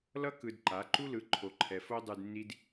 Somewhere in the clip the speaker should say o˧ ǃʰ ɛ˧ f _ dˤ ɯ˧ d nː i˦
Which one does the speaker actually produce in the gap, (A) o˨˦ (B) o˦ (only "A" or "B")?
B